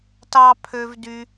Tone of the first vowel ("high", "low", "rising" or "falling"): high